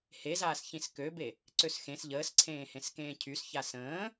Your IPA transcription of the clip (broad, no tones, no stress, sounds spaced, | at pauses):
h e z aː s ç ĩ s k ø b e | ǀ ø s x ẽ s ʎ əː s ǀʰ ẽː h ẽ s k ẽː cʰ y s ç a s ə̃ː